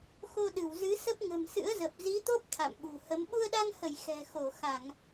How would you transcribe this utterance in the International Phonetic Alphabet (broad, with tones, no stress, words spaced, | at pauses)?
xo˧ɗɨ˧˩wzɨ˨˦ sə˦˥p̚ŋə̤˨˩m sɨ̰˧˥ə̯zə˨˩p̚ zi˨˦t̪o˦˥p̚ t̪ʰa̰˧˨mɓṳ˨˩hə˨˦m ɓu˧ə̯ɗa˧ŋhə˧˩j xɛ̤˨˩xo˧˩ xa˧˩˨ŋ